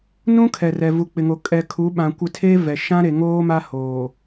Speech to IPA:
nũ˦kʰɛ˨rɛ˨ vu˨k͡pɪ˨ŋo˨ kʼɛ˨kʰu˨˦ɓã˨kʷɪ˦˨ tʰe˦vɛ˨ ʃã˦ɾe˨ ŋoː˦ ma˦ hoː˨

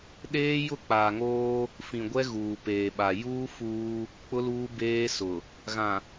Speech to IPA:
ɗeː˦jʊ˦˨ k͡paː˨ŋoː˦ | fĩ˨ɡʷɛ˦ ɣuː˨peː˨ɓa˨ juː˦fuː˦ | k͡pʊ˦luː˦ beː˦sʊ˨ | ɣã˨

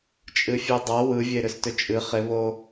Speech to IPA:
t͡ʃʼɨfʲɛdˤa wɯvʲe ɾʏstʏt͡ʃʼɨ χɪβo

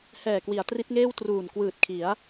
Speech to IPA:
hɛː˨˩kwi˩˦a̯ tri˦˥t̚ŋeː˥˩w truː˨˩nkwɯː˨˩t̚kʰi˩˦a̯

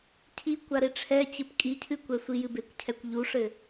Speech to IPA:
cʰi kʷaɾeʈ͡ʂʰɛt͡ɕɨp kʼicʰɨkʷɛsʷi jɨbekʷcʰɛkʷ ʎuʂɘ

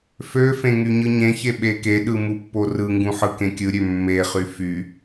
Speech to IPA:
føfẽ ŋyɲɯɲẽçe ɓekeɗɯ mupːorɯŋɡũ ħɯkẽkʲɯɾʲø mːeχy fy

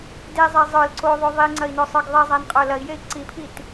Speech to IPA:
dezˤe zˤə˞l ǀoðˤo ðˤiŋ͡ǀɐi̯nosˤə˞ɡ ðˤizˤænqʼə˞ lɐi̯jei̯ ǀipʰit

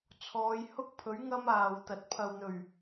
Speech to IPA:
t͡sʰɔː˨˧jhʊ˥k̚pʰɵ˨˥ɥ ŋɐ˥maː˨wt̪ɐ˨t̚ pʰɐ˨wn̪ɵ˨˩ɥ

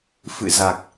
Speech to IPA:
fɨ̰˧˨za˨˩k̚

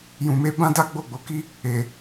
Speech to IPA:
jũ˨me˧ bã˦da˦ ɡ͡bo˦˨ɡ͡bo˨˦ki˦ | e˨

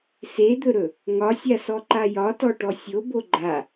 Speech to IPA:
sed̪ɵɾɵ | ŋɒsʲasɔǃa jɒtɔʈɔ sʲobo ɡ͡ǃa

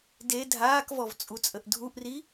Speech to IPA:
de dʱaːkvɔv t͡sʼut͡sʼəʔdʱuʔri

